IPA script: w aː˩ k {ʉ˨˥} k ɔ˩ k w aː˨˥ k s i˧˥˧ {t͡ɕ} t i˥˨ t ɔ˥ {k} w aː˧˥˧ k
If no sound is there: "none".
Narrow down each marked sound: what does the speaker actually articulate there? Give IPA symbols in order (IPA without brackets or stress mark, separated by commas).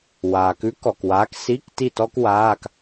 ʉ˨˥, k, k